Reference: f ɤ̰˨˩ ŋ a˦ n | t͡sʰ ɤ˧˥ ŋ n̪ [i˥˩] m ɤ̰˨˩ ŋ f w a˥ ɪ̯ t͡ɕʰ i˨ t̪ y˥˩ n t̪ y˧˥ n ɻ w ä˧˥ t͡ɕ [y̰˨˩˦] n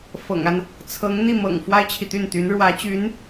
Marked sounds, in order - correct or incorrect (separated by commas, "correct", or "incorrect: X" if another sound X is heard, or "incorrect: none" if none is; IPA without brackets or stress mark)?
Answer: correct, incorrect: y˧˥